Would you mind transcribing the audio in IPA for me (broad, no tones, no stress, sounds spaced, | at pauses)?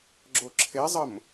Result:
ɡ͡ǁ o ǁʰ e zˤ ə m